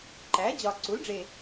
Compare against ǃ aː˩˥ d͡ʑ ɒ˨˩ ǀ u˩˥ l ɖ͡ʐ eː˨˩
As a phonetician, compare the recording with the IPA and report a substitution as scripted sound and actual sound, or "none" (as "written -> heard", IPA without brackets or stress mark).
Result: aː˩˥ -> æː˩˥